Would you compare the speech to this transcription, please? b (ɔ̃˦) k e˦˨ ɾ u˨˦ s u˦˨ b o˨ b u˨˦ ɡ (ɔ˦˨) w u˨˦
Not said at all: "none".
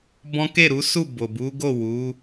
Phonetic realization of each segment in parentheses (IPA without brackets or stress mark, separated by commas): ɔ̃˦, o˦˨